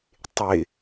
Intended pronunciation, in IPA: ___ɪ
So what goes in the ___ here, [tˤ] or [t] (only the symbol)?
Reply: tˤ